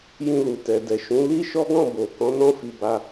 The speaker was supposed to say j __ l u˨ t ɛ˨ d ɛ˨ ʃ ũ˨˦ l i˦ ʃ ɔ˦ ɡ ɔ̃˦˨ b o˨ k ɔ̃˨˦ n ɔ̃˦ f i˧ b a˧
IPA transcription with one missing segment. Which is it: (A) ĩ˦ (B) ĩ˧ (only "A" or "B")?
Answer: B